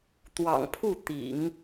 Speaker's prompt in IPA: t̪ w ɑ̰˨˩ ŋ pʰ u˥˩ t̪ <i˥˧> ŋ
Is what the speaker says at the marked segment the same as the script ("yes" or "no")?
no